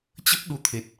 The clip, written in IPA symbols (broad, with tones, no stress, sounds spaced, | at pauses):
t͡ɕ ə˦˥ p̚ ɗ u˨˦ t̪ʰ e˨˩ t̚